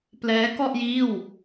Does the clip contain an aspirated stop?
no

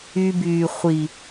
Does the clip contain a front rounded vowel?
yes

